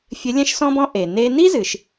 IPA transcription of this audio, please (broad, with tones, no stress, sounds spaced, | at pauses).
fʲ ɘ˧˥ lʲ ɛ̃˥ ʃ s ɔ̃˥ b ɔ̃˥ ʔ e˩ n e˧ n i˥ z ɨ˩˧ ʃ